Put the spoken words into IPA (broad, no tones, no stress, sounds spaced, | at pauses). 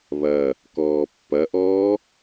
β ɐ | k ɔː pː ɐ ʔ ɔː